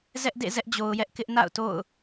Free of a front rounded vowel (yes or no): yes